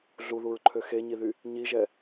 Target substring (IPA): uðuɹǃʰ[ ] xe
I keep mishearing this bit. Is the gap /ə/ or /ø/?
ø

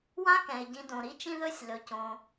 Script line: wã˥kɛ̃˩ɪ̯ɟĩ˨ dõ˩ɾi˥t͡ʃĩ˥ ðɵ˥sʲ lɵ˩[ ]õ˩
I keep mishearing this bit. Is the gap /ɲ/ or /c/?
c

